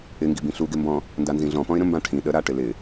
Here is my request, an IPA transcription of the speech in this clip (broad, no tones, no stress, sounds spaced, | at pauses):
ɪ ŋ ɡ i b ĩ ɬ u ɡ ɪ m b ɔ̃ | n d a n z ĩ ɮ ɔ̃ p ɔ̃ ɪ̯ ɾ ə̃ m b ã ʈʰ ĩ ɗ ə ɾ a ʈ ɪ l ɪ